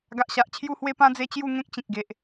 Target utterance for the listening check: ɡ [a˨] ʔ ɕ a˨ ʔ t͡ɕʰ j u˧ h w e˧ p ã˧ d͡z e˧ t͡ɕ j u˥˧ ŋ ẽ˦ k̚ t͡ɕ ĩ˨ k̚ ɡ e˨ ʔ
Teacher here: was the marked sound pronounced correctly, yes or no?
yes